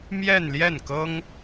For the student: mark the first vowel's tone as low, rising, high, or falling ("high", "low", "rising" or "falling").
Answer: falling